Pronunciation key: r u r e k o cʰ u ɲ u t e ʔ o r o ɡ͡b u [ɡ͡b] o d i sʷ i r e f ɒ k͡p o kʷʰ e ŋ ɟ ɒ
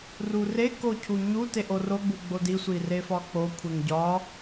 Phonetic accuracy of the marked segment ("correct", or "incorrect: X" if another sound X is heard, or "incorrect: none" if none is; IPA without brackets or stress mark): correct